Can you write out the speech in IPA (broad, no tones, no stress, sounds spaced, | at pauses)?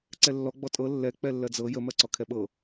ǀ ɛ lː ɔ ɡ͡b ɔ tʼ ɤ lː ɛ k͡p ɛ lː ɜ d͡z ɤ j ə m ɜ ǀ ɔ kʰ ɛ ɓ ɤ